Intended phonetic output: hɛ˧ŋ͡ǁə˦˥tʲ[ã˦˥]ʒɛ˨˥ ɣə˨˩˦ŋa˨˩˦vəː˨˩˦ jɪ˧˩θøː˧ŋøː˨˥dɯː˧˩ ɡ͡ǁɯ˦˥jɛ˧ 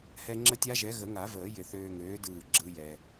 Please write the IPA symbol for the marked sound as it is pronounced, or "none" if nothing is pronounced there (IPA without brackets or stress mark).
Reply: a˦˥